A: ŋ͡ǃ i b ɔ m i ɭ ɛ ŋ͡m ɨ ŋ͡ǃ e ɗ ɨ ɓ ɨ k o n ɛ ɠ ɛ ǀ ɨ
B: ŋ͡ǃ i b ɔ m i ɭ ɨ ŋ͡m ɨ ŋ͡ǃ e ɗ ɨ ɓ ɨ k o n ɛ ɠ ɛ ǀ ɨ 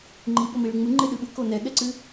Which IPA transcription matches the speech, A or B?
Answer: B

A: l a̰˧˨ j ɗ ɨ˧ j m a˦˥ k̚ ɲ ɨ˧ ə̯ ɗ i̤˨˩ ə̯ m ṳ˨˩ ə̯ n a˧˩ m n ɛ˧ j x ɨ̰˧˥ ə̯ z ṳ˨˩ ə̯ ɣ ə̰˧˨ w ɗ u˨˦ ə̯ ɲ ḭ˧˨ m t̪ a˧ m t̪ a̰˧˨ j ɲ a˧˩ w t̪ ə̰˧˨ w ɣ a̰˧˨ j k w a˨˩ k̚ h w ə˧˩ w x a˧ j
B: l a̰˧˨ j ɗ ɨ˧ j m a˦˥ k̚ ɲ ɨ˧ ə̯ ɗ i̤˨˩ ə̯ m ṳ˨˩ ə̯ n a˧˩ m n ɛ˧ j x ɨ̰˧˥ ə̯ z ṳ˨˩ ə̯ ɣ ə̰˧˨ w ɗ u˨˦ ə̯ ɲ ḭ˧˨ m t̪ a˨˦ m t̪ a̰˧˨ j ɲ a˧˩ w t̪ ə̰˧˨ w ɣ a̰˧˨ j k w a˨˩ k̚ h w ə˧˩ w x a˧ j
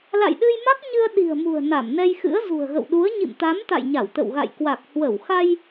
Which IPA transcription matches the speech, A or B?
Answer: B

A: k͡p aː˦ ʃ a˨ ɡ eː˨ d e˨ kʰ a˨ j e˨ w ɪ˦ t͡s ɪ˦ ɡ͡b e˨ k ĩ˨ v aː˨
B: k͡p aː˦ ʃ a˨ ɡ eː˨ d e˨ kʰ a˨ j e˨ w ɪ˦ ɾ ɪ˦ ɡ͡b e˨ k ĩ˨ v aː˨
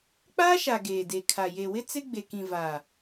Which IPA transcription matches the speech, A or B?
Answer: A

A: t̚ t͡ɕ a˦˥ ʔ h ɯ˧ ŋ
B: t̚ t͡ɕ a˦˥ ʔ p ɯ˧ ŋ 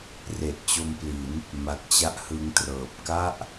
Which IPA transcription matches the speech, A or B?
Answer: A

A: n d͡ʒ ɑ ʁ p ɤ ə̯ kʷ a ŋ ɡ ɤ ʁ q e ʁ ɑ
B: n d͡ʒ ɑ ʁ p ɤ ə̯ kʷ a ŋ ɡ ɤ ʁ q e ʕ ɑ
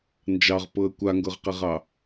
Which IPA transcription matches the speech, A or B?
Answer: A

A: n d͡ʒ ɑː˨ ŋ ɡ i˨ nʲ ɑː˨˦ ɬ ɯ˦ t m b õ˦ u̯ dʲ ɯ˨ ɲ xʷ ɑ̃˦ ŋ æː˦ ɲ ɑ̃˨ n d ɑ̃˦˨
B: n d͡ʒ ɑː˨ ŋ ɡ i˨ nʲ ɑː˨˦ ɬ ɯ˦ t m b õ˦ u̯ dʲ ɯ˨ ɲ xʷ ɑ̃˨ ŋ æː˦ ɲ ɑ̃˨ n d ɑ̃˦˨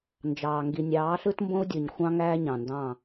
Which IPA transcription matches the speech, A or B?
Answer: A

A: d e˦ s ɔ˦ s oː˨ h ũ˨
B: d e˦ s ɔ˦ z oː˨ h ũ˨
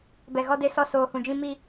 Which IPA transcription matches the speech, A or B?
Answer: A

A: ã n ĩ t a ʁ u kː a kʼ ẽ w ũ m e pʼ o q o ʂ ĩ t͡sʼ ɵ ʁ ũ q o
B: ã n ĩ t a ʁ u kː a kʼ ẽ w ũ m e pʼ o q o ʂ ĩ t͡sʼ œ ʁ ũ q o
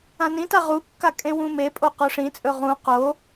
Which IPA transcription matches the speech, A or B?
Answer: A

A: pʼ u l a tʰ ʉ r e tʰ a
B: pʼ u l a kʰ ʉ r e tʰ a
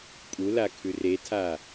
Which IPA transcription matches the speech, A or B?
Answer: B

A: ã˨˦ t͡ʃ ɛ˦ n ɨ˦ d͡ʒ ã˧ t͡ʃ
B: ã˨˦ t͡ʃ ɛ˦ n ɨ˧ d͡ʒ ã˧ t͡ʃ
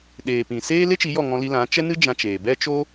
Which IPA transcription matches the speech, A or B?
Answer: A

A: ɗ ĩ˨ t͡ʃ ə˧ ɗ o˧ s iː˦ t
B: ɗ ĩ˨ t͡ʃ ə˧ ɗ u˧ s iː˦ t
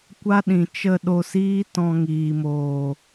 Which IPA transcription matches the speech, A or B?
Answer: A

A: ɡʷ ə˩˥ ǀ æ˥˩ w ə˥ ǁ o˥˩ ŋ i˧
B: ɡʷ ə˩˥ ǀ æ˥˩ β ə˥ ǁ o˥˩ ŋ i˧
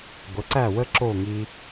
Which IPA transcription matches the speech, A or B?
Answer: A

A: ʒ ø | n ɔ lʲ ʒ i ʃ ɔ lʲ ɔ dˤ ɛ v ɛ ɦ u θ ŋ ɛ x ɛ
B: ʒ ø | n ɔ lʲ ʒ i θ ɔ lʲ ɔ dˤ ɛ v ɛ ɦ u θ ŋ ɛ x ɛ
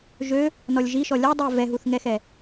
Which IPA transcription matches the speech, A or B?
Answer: A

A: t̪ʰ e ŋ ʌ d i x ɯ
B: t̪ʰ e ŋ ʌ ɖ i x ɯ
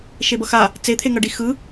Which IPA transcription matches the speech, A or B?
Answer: B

